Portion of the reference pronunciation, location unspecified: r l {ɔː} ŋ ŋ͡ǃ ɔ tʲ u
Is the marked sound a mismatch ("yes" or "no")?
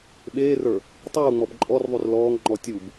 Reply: no